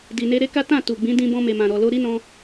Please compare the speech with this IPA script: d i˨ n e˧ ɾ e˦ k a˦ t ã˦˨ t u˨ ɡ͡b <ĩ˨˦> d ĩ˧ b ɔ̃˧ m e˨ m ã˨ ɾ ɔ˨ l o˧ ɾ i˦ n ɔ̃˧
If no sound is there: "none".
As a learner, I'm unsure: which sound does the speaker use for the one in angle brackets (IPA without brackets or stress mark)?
ĩ˨˦